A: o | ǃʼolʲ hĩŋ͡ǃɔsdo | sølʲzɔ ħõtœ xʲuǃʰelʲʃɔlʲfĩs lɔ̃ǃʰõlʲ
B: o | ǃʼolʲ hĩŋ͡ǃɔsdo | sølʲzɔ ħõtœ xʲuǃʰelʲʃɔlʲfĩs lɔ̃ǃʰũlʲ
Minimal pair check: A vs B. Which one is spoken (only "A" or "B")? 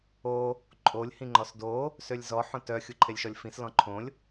A